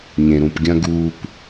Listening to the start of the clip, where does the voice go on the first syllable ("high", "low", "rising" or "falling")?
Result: low